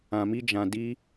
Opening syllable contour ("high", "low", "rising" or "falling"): low